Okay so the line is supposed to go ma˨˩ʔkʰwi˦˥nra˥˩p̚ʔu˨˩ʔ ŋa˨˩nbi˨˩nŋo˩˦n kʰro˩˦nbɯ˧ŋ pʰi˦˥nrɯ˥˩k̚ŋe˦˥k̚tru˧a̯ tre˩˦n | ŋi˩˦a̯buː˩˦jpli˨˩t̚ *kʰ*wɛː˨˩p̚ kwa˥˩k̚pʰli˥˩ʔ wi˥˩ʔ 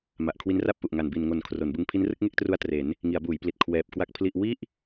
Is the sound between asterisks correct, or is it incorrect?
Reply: correct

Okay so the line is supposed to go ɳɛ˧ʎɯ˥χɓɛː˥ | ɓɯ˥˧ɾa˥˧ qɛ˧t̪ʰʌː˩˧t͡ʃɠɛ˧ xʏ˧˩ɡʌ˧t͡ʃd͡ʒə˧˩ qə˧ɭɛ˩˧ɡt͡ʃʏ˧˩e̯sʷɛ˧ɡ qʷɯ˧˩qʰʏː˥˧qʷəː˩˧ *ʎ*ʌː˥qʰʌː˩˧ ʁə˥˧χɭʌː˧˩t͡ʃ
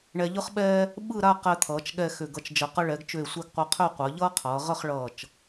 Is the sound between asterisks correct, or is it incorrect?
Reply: correct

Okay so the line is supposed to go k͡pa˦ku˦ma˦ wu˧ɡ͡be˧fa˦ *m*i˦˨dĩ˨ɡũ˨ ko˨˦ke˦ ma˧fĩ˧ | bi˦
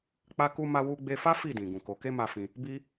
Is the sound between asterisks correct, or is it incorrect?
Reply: incorrect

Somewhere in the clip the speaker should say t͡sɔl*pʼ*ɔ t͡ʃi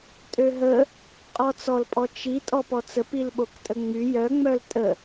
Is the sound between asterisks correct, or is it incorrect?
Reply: correct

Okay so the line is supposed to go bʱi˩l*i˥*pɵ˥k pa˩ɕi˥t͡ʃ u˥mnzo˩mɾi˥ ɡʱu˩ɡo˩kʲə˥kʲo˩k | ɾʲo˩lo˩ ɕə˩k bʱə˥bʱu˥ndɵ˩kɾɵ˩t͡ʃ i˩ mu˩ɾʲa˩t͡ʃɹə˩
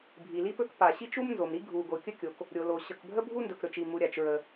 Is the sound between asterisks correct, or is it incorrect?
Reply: correct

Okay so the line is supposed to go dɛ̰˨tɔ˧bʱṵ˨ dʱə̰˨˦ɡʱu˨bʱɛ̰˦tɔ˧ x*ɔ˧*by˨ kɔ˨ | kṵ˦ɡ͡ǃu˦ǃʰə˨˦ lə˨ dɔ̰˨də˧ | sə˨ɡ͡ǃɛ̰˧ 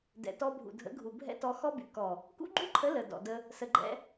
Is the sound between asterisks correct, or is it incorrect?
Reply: incorrect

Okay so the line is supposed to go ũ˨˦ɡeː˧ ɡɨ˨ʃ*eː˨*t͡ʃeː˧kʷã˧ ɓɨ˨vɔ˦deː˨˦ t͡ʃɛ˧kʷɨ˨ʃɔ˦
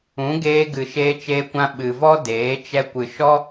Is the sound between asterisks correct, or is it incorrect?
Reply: incorrect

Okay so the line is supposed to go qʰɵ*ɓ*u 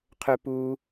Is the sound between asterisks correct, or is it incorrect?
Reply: incorrect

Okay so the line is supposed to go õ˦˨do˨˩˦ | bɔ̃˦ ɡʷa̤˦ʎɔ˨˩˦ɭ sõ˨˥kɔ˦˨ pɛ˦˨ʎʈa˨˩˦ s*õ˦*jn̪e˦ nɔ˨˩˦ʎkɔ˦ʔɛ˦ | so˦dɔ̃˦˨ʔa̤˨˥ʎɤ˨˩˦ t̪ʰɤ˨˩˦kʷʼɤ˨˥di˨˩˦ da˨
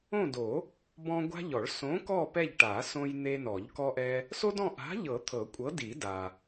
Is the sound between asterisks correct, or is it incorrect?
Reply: correct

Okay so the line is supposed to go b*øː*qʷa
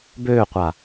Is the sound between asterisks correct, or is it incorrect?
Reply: correct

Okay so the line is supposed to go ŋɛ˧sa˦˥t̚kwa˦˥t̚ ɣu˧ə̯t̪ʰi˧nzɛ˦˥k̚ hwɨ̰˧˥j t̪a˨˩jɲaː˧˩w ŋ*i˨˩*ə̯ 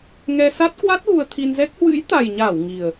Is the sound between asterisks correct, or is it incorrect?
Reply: correct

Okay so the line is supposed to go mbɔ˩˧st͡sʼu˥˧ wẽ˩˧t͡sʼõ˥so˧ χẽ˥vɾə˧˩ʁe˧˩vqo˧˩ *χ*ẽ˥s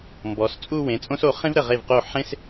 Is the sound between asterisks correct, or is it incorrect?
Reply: incorrect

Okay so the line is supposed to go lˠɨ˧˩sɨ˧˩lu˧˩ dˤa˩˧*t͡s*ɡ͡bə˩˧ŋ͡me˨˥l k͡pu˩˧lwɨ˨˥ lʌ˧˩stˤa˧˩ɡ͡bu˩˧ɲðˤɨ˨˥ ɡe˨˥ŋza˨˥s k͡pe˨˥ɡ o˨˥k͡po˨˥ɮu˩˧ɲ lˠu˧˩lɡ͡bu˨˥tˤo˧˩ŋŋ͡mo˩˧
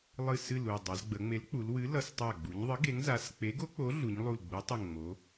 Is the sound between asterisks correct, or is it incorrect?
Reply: incorrect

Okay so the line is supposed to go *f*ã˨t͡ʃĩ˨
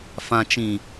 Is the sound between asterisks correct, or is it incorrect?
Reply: correct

